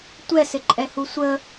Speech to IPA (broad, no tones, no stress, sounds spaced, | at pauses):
tʷ ɛ s ɪ ǃʼ ɛ h u sʷ ə